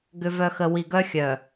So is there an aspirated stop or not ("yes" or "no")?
no